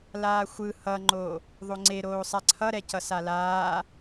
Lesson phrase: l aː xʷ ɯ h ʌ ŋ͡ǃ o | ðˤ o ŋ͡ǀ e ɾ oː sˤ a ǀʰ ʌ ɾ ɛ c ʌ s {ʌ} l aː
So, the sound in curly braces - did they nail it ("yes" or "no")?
no